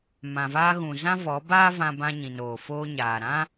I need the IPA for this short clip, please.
m ã˨ v aː˧ ɣ ũ˨ z ã˦ v ɔ˨˦ b aː˦ v ã˧ b ã˧ ɲ ĩ˨ n oː˨ f oː˧ ɲ aː˨ ɾ ã˦

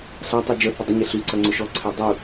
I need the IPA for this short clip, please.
ɬ a tˤ u d͡ʒ ə θ ə dˤ ə ɲ e ɬ y ǀ ɐ ŋ͡ǀ ʊ ʃ ɔ ǀʰ e dˤ u

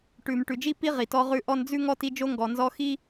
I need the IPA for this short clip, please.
ʈ ʉ˨ m ʈ ʉ˨ d͡ʒ i˥ p i˥ ʁ i˩ t ɔ˦ ʁ ʉ˦ ʔ ɔ˦ n d͡z ʉ˥ ŋ ɔ˥ t i˦ d͡ʒ o˥ ŋ ɡ ɔ˨ n z ɔ˦ x i˥

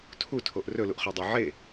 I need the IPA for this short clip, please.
tʰ u tʰ o ʔ r ɵ l u ʔ χ œ dˤ œ ʕ e

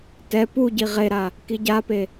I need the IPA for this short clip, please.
t ɛ p u ɟ i ʁ e ɾ a | k i ɟ a p e

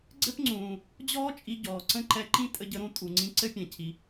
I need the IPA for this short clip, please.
ɡ͡ǀ ɘ˥ p ŋ͡ǀ ũː˩ | d͡ʑ ɔː˥ t͡ʃʼ i˧ ɟ ɔː˩ ǀ ə̃˥ ǃ ɛ˧ ǃ ĩ˥ tʼ ə˧ ɟ ə˧ ɾ ũ˧ tʼ u˩ ŋ͡ǀ ĩ˧ ǀ ɘ˥ pʲ ɛ̃˩ cʰ i˩

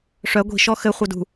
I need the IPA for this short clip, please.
ʂ œ ɡʷ i̤ ʃ ɔ x ɘ χʷ œ d ṳ

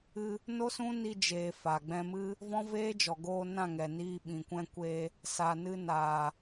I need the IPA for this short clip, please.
ɨ˧ | n o˦ s ũ˦ n i˧ d͡ʒ eː˨ f a˨ ɡ͡b ɛ̃˧ m ɨ˦ | v ɔ̃˦ v eː˦ d͡ʒ ɔ˨ ɡ oː˧ n ã˦˨ ŋ ɛ˨ n iː˧ ɓ ĩ˨ kʷ ɛ̃˧ kʷ e˧ | s a˨ n ɨ˧ n aː˨

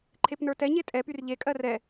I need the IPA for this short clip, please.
ǃʰ e p n ə˞ t ɛ ɲ e tʼ ɛ p y r ʎ e kʼ ɜ r ɛ

